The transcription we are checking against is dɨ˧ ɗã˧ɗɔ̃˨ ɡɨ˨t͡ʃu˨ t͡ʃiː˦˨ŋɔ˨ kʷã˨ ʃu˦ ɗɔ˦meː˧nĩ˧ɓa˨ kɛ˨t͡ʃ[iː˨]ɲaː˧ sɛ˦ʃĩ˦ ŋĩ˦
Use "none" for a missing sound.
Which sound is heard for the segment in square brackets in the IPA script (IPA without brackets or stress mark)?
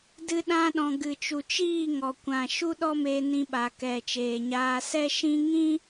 eː˨